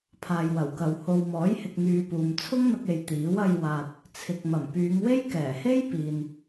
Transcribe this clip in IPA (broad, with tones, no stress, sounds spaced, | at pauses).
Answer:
pʰ aː˨ j w ɐ˨˩ w k ɐ˨ w h o˨ w m ɔː˨˥ j h ɪ˧ k̚ ŋ yː˧ p uː˨ m t͡sʰ ʊ˥ ŋ n̪ ɐ˧ k̚ e˧ j t̪ iː˨˥ w ɐ˧ j w aː˨ t̚ | t͡sʰ ɪ˨ k̚ m ɐ˨˩ m p yː˨˧ ŋ w e˥ j k ɛː˨˩ h e˥ j p iː˨ n